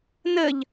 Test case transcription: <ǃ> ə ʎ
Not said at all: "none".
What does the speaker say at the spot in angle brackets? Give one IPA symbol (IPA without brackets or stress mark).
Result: n